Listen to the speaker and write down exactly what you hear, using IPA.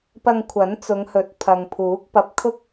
p ɐ˧ ŋ kʷʰ ɐ˨˥ n t͡s ʊ˨˧ ŋ h ɵ˨˥ t̚ pʰ ɐ˨ ŋ pʰ uː˨˥ k̚ p ɐ˧ p̚ kʰ ʊ˥ k̚

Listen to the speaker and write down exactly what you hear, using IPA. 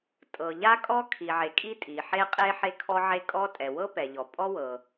tʼ ɤ˩ ʎ a˥ kʼ ɔ˥ kʰ i˩ ʕ e˩ kʼ i˥ tʼ i˩ ħ e˥ qʼ e˥ ħ e˥ kʰ ɔ˥ ʕ e˥ kʼ ɔ˥ tʼ ɛ˩ w ɤ˥ p ɛ˩ ʎ ɔ˩ pʼ ɔ˥ w ɤ˩

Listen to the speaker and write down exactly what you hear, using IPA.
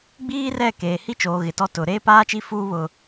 ɡ͡b iː˦ r ɛ˦˨ k eː˨ h i˦ t͡ʃ oː˨ ɣ ɪ˨ t ɔ˦ t ʊ˨ ɾ eː˦ p aː˦ t͡ʃ i˦ f uː˦ β ʊ˦

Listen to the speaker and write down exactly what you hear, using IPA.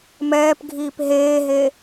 m ɛː p ɡʱ iː p ɦ eː ɦ e

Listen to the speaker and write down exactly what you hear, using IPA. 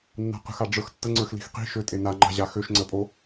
nː a̤ q ə̤ x a ɖ͡ʐ ə˞ x tː ə ŋ͡ǀ ə˞ x l i̤ x q i̤ ʃ ø tʼ e n a ŋ͡ǃ a̤ ʑ a x ø ʃ ŋ͡ǀ ə pʼ o

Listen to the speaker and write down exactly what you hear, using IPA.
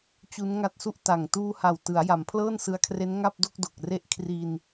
t͡ɕ u˦˥ n ŋ a˥˩ t̚ s u˥˩ ʔ t a˨˩ ŋ t uː˧ h a˨˩ w t ɯ˩˦ a̯ j a˩˦ m pʰ l ɤː˥˩ n s ɯ˧ a̯ kʰ r e˦˥ n ŋ a˥˩ p̚ d o˥˩ k̚ d o˨˩ k̚ r e˥˩ ʔ kʰ r i˧ n

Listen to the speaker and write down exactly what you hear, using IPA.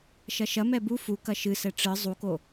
ʃ ɐ ʃ ɐ m ɛ b u f u k ɐ ʃ ɨ s ɛ ʈ͡ʂ ɨ zˤ u k o

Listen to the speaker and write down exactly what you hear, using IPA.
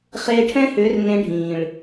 χ eː˧ ʈʰ ɛ̃˦ h ʏː˨˦ r n ẽ˧ ɖʱ ĩː˨ ɭ

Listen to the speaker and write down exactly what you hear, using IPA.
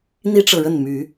n̪ i˦ ʈ͡ʂ ɤ˨ ɻ ə˥˨ n m y˨˦

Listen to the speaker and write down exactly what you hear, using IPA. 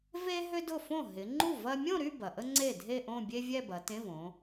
v e˥ ɦ ʏ˥ d ʊ˥˩ f õ˥˩ ɦ ɪ˩˧ ŋ͡ǃ u˥˩ v ɐ˥ mʲ õ˥˧ ɾ y˥˧ b ɐ˩ ʔ ə˥ ŋ͡ǀ e˥˩ dʱ e˥˧ ʔ õ˥˧ bʲ e˥ vʲ ɛ˥˧ b ɐ˩˧ t ẽ˧˥˧ v õ˩˧

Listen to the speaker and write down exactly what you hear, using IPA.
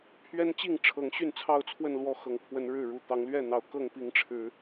pʰ ɥ ɛ˦ n t͡ɕ i˥˨ ŋ ʈ͡ʂʰ ɤ˨˦ ŋ ɕ y˥˨ n t͡sʰ ɑ˥˨ ʊ̯ t͡sʰ w ə˥˨ n l w ɔ˥˨ x ɤ˨˩ ŋ pʰ w ə˨˦ n ɻ ɻ̩˥˨ ɻ u˨˩ t̪ ɑ˨˦ ŋ l ɥ ɛ˥˨ n̪ ɑ˨˩ ʊ̯ k ɤ˥˨ ŋ p i˨˦ ŋ ʈ͡ʂʰ ɻ̩˨˦

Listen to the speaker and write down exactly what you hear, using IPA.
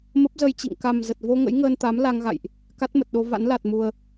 m ə˦˥ p̚ z ə˧ j t͡ɕ ḭ˧˨ ŋ k a˨˩ m z ə˨˩ t̚ v o˧ ŋ ə̰˧˥ j ŋ əː˧ n t̪ a˨˦ m l a˧ ŋ ɣ a̰˧˨ j ʔ | k a˦˥ t̚ m ə˨˩ t̚ ɗ o˧ v a̰˧˥ n l a˨˩ t̚ m u˨˩ ə̯

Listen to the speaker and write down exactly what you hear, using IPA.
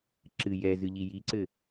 ǁ ɨ j ɛ z ɨ ʎ i j i ǀ ɘ

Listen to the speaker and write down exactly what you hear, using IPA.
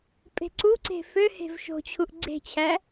pʼ e̤ ǀ u ǀ e̤ f ø h e̤ v ʃ o̤ t͡ɕʰ u ʔ ɡ͡ǀ e̤ t͡ɕʰ æ

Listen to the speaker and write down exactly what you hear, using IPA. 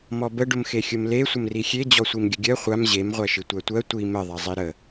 m ɔ b ə ɖ ʊ m x e xʲ ʊ m l e sʷ ə m r i xʲ e d͡ʑ ɔ sʷ i m ɡʲ ə ɡʲ ɜ χʷ a m ʑ e m ʁʷ æ ʃ i tʷ æ tʷ ɜ tʷ i m ə ðˤ a zˤ i ɾ ə

